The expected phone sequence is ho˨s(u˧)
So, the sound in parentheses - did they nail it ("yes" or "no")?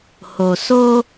no